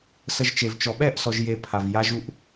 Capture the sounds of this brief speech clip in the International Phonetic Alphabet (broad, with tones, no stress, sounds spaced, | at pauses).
s ə˧ ʒ t͡ʃ e˨ v t͡ʃ ɔ˨ ɓ ɛ˦˨ ʔ s ɔ˨ ʒ j e˧ pʰ a˨ v j a˧ ʒ u˧ ʔ